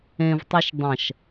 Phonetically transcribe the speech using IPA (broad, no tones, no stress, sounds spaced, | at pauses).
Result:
ẽ v tˤ y ʃ dˤ ɐ̃ ʃ